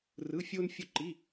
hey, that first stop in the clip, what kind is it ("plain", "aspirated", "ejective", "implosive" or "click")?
click